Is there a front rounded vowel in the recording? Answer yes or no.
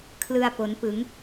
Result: no